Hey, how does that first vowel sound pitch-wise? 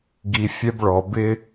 high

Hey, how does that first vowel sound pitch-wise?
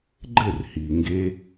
falling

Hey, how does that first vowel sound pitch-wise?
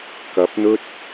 rising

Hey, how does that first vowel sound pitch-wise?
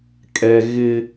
low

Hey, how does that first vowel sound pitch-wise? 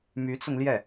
rising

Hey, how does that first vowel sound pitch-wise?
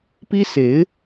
high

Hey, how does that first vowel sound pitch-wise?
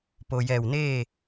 low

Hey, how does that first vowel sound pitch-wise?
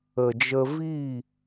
low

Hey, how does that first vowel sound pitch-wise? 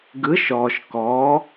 rising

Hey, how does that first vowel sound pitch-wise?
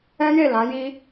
high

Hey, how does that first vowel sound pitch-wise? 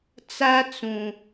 high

